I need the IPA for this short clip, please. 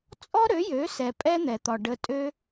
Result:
t͡sʼ ɔ˦ ɾ ø˨˦ j ø˨˦ s ɛ˨ pʼ ɛ˦ n̪ ɛ˨ t̪ ɒ˨ ɖ ə˧ tʼ ø˦

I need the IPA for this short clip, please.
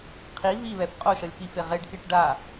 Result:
qʰ i β i β ɛ f qʼ o ʃ ʌ lʲ p i f e ʁ e ɖ k e ʈ ɖ a

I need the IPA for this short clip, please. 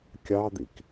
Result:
kʲ ɑ d̪ ḭ k

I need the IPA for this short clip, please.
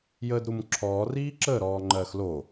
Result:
j əː d ɾ u m ǁʰ ɔː r iː ǁ ə ɾ ɔː ŋ͡ǃ ɜ x l o

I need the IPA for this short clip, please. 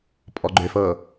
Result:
pʼ ɔ ɡ͡ǃ ʏ f ɤ

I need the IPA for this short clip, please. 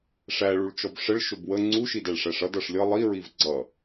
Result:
ʂ æ ɭ u ɭ t͡ʃ ɔ b ʂ ə ɭ ʃ ʊ b w ə ŋ͡ǀ u ʃ i d æ ɭ ʂ æ ʂ ʌ d ʌ ʂ lʲ ʌ lˠ i ɹ i v ɡ͡ǀ ʌ

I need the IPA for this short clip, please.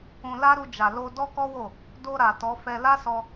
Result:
ũ˧ l a˦ ɾ u˧ d͡ʒ a˨ l o˧ d ɔ˦ k ɔ˦ w o˦˨ | d o˧ ɾ a˨ t ɔ˨˦ f ɛ˧ l a˦ s ɔ˧

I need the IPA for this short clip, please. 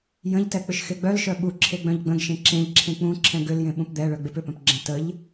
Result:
j ə̃ ʎ t ɛ k͡p ʏ ʃ x e ɡ͡b œ l ʃ œ ɓ u ǁʰ e ɡ͡b œ̃ ʎ ɡ͡b ə̃ ɡ ʃ ẽ ǁ ẽ ʎ ǁʰ ẽ k͡p ũ ǁʰ ɛ̃ ɡ ʏ l j ẽ ɓ ũ p d̪ ɛ ɭ œ ɡ͡b e p ʏ p œ̃ p ɡ͡ǁ ə̃ t ə ʎ

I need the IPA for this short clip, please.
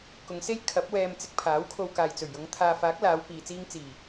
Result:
k ʊ˨˧ ŋ s e˥ j kʰ ɐ˨˥ p̚ w ɛː˧ m t͡s ɪ˧ k̚ pʰ aː˨˥ w kʰ o˧ w k aː˨ j t͡s ɵ˨˩ ɥ j ʊ˨˧ ŋ t̪ʰ aː˨ f aː˨˥ k̚ l aː˨˧ w p iː˨ t͡s iː˧ ŋ t͡s iː˨˩

